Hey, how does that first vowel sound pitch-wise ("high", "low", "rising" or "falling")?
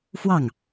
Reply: falling